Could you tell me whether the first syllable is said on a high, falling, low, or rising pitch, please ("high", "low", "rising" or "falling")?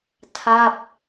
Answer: falling